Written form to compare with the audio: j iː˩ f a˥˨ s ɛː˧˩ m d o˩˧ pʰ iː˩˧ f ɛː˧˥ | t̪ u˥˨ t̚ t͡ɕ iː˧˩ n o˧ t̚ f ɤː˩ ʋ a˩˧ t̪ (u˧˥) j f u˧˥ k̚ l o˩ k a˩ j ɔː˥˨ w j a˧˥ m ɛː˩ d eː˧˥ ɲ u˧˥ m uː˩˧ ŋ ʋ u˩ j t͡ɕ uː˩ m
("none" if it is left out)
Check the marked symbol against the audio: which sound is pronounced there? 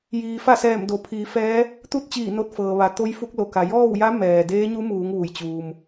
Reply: o˧˥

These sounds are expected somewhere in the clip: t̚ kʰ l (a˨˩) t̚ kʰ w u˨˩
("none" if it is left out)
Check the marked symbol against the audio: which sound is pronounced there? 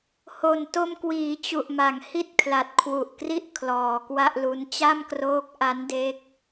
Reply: a˨˩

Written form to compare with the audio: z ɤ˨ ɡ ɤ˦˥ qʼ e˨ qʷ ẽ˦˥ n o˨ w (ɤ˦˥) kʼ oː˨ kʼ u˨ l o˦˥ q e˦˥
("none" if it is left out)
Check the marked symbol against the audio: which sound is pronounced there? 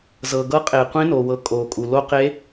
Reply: ɤ˨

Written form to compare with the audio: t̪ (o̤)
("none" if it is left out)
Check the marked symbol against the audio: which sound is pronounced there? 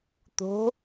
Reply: o̤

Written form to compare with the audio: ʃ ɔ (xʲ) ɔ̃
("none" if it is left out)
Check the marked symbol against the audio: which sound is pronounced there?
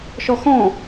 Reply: x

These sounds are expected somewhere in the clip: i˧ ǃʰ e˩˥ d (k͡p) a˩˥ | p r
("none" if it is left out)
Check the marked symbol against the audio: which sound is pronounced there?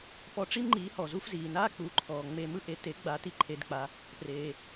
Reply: k͡p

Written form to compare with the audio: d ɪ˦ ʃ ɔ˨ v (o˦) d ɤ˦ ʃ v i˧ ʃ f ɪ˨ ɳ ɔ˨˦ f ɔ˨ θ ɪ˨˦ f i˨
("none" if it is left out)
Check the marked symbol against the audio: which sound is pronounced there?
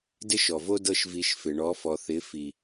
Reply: o˦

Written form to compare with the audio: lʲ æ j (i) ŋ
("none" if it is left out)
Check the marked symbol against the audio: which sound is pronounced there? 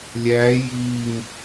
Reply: i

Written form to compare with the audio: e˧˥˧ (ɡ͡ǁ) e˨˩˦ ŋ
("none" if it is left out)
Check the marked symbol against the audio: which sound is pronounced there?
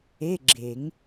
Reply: ɡ͡ǁ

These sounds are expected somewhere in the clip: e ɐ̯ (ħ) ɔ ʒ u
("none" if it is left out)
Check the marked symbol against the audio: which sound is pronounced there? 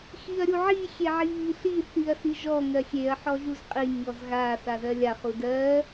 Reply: ħ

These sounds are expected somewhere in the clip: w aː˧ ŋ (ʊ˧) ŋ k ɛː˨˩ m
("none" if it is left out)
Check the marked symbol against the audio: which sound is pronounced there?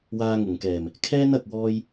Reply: ʊ˨˩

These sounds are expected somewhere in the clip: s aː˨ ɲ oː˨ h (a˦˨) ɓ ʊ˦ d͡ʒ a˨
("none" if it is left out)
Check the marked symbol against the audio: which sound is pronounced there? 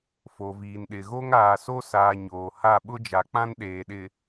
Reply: a˦˨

